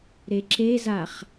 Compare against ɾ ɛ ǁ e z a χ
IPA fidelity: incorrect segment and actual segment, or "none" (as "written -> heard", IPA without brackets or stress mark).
ɛ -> e